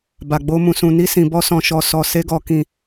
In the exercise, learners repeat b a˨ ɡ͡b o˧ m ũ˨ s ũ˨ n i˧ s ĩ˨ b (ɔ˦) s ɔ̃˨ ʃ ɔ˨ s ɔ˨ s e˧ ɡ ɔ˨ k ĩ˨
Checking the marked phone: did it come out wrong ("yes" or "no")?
yes